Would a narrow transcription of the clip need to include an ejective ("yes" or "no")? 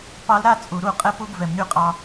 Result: yes